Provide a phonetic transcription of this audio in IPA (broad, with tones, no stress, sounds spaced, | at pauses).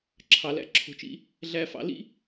ǁʰ ɑ˨ l æ̰˧ ǁʰ o̤˨ t͡ʃ ḭ˧ | ɮ æ˧ f ɑ̰˧ l ḭ˦